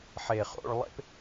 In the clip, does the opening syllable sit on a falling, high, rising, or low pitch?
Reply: low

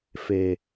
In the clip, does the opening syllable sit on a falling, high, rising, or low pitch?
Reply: low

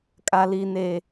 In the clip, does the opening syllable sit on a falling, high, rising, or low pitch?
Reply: low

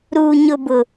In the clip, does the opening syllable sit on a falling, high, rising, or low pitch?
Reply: low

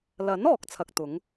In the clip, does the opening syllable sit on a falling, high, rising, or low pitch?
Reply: rising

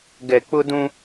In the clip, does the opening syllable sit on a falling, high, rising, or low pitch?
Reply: low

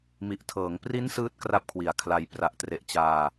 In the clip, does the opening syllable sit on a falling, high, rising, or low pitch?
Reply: low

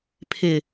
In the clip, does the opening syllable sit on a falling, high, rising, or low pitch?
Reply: low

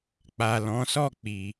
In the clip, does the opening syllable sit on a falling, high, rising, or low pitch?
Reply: low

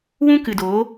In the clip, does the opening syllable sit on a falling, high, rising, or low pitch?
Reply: high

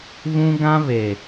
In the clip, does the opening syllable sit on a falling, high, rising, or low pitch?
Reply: high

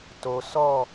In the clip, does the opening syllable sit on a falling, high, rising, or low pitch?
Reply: low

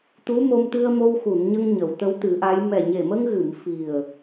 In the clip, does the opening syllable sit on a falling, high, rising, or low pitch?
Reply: rising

